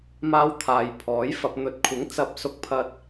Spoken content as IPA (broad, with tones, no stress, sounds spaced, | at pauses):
m aː˧ w t̪ʰ aː˨ j pʰ ɔː˨˥ j f ɐ˨ p̚ n̪ ɵ˨˥ t̚ kʷʰ ɪ˨˥ ŋ t͡s ɐ˧ p̚ s ʊ˧ k̚ pʰ ɐ˧ t̚